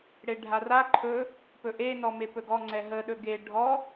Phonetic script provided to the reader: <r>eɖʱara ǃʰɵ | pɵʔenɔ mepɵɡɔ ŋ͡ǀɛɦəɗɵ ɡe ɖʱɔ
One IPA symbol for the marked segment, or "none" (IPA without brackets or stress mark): ɽ